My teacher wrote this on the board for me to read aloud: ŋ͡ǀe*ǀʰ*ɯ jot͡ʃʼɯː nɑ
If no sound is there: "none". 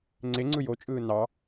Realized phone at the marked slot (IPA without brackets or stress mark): ŋ͡ǀ